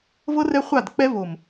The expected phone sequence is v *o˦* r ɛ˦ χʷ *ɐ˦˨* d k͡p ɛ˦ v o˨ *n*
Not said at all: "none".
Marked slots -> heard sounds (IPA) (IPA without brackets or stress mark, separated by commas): ɤ˦, a˦˨, m